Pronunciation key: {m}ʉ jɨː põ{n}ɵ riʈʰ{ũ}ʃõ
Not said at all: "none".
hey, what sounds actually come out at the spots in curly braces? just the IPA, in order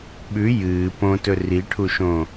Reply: ɓ, t, u

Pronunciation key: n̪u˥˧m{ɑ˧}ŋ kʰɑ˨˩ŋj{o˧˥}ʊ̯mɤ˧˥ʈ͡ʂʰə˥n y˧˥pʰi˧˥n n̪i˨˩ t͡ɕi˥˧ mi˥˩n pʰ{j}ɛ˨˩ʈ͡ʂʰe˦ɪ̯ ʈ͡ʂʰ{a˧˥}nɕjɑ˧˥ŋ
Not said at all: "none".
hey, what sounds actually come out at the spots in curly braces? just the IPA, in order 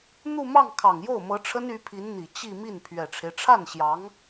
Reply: ɑ˥˩, o˥˩, ɥ, a˥˩

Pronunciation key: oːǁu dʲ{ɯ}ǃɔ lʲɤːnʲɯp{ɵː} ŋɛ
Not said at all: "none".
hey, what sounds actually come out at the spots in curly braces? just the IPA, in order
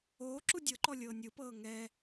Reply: ɤ, ɤː

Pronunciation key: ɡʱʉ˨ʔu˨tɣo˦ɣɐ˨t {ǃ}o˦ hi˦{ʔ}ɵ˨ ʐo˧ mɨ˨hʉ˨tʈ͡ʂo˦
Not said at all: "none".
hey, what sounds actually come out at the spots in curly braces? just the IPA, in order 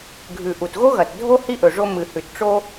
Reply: dʱ, ʔ

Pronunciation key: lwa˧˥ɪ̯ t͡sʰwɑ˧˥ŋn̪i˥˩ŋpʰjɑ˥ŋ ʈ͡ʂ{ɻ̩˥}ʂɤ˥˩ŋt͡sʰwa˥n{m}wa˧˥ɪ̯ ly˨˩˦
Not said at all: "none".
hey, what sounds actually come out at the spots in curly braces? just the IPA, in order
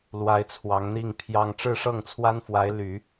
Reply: ɻ̩˥˧, f

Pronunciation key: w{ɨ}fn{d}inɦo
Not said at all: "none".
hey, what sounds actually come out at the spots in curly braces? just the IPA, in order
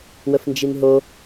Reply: ə, d͡ʒ

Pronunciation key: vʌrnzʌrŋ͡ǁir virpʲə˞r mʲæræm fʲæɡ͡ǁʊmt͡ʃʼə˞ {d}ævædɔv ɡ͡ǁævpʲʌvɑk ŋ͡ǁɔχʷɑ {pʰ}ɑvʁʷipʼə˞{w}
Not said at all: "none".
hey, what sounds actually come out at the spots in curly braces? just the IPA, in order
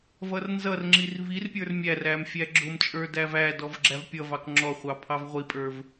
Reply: d, pʰ, v

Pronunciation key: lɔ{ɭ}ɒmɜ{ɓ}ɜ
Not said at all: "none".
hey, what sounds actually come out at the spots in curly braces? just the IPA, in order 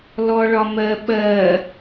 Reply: ɭ, ɓ

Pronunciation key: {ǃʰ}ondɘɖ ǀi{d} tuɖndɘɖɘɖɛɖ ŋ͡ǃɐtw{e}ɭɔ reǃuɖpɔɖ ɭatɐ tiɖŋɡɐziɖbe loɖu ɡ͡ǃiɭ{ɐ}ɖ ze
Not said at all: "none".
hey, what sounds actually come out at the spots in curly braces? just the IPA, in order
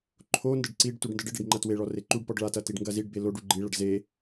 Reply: ǃʰ, ɖ, e, ɐ

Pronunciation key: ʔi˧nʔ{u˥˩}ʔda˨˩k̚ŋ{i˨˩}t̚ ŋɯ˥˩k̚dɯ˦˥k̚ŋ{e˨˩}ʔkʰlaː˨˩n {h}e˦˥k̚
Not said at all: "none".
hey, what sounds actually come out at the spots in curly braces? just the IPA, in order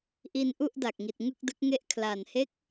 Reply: u˥˩, i˨˩, e˥˩, h

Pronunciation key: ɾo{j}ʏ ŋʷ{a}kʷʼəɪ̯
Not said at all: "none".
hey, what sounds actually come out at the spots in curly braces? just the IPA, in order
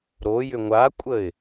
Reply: j, a

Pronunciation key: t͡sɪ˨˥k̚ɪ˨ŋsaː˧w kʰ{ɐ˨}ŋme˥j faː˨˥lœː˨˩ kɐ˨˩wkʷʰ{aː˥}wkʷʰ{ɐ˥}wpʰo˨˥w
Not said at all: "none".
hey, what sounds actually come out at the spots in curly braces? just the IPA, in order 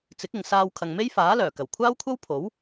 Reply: ɐ˨, aː˥, ɐ˥

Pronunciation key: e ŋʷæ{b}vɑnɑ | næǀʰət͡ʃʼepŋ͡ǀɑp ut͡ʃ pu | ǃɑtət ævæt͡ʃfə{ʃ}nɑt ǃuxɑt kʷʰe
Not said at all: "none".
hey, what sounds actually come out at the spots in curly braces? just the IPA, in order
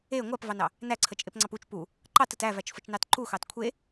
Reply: p, t͡ʃ

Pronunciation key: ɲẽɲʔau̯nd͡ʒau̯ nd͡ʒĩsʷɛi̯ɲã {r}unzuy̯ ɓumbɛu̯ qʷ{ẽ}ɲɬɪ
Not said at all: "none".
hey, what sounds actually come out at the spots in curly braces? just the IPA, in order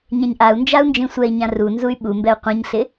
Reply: r, ẽ

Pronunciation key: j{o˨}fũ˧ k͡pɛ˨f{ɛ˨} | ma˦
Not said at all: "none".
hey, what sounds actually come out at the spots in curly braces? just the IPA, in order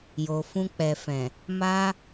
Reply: o˨, ɛ̃˨

